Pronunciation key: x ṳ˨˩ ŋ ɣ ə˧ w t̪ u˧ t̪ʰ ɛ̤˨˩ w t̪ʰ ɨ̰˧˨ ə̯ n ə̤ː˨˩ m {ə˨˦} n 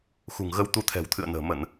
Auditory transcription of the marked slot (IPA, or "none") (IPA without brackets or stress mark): ə˧˩˨